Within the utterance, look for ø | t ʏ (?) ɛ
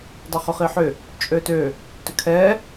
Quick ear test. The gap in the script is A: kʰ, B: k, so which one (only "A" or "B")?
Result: A